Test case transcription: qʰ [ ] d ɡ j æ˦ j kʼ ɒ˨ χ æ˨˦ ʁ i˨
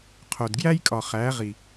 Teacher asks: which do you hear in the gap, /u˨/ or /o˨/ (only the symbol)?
o˨